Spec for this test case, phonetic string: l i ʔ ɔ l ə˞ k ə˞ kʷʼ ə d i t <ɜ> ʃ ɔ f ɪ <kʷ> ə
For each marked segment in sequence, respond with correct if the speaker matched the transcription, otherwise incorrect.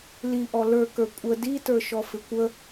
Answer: incorrect, correct

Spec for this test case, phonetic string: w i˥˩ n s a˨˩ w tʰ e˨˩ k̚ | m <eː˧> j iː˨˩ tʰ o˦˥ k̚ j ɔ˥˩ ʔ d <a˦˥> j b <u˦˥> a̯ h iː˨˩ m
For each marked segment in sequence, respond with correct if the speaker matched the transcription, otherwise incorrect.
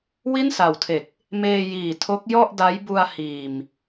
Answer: correct, correct, incorrect

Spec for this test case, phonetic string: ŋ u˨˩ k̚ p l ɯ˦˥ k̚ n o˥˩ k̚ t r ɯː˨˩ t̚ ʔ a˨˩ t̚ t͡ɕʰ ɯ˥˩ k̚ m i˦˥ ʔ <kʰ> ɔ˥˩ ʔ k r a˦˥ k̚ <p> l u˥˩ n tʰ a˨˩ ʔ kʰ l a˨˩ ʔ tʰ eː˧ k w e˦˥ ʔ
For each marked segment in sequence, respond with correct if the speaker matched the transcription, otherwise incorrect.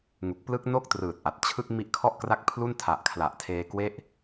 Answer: correct, incorrect

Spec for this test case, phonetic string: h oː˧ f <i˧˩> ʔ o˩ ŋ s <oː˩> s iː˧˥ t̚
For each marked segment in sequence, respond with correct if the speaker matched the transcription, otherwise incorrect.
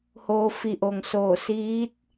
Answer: correct, incorrect

